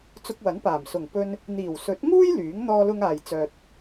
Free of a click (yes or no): yes